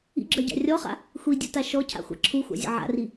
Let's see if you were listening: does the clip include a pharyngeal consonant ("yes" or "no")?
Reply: yes